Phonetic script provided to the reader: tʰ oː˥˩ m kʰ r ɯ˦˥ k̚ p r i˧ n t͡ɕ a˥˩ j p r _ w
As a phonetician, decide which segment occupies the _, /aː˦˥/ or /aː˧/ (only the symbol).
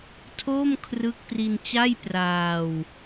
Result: aː˧